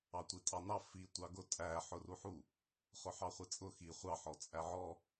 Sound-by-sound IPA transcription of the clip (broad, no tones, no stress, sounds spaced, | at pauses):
ɑ tʷ i tʼ ɑ n ɑ f i tʷ ɑ ɡ ʊ tʼ æ ħ ʊ r u ħ u | χ ʊ ħ ɑ χʷ i t͡sʼ ʊ x i χʷ ɑ ħ ɔ t͡sʼ æ ʕ ɔ